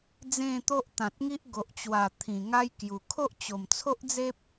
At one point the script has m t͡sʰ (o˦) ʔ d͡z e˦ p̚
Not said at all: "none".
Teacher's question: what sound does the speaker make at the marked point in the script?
o˦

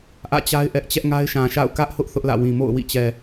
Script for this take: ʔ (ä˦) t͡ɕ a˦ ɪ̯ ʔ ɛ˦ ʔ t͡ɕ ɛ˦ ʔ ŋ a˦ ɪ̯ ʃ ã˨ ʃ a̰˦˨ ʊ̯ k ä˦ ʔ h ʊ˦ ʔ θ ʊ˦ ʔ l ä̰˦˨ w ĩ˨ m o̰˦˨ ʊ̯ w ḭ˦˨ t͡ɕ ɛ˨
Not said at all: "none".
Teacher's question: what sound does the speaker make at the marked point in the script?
ä̰˦˨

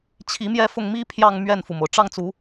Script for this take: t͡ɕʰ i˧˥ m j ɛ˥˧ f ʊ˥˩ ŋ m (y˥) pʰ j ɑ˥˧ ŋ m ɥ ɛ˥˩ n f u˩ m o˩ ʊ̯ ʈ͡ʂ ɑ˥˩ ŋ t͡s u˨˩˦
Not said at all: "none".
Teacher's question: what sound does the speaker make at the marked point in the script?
i˥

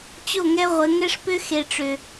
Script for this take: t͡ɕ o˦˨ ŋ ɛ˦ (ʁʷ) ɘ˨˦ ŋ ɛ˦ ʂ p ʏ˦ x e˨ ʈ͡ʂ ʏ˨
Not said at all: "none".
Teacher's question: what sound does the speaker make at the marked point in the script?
ʁʷ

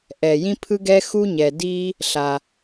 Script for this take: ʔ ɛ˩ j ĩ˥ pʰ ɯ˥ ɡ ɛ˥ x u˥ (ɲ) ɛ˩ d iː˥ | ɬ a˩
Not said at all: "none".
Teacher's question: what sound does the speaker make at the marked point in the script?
ɲ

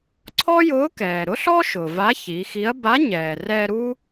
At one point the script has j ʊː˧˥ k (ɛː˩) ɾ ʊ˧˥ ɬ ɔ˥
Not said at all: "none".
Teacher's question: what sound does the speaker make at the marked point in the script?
ɛː˩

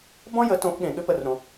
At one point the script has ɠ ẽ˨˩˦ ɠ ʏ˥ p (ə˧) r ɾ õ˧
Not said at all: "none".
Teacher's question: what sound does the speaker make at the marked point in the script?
ə˥˧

